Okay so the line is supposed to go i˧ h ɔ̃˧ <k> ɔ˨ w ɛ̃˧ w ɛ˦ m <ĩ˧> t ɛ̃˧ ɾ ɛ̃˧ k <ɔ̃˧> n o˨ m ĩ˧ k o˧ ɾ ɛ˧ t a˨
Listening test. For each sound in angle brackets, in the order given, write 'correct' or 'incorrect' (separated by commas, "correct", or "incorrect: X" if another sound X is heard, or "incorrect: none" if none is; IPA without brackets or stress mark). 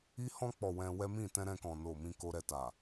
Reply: incorrect: k͡p, incorrect: ĩ˦˨, incorrect: ɔ̃˨